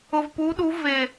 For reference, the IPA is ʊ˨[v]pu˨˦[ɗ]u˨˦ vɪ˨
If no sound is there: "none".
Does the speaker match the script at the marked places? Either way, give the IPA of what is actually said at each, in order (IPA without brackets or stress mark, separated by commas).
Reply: v, ɗ